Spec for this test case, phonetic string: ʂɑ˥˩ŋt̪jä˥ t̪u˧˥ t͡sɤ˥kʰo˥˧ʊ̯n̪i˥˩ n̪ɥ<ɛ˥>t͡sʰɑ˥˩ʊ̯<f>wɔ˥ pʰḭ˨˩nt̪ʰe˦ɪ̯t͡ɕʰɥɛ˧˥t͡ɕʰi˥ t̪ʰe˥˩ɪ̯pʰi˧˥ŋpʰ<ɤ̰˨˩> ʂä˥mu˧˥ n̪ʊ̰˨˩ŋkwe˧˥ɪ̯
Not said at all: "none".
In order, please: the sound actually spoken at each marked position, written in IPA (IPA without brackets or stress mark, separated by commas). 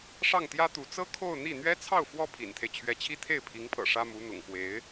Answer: ɛ˥, f, ɤ̰˨˩